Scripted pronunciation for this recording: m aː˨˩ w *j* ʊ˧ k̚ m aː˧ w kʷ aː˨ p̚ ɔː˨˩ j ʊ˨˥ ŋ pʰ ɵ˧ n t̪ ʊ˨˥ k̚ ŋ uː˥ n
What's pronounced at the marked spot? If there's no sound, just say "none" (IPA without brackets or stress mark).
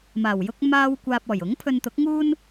j